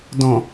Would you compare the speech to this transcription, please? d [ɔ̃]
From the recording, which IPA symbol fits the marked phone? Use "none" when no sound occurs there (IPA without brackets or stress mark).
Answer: ɔ̃